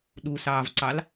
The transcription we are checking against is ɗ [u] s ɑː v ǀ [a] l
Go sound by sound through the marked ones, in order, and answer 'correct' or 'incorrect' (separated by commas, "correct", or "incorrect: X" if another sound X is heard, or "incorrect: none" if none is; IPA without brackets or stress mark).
correct, incorrect: ɑ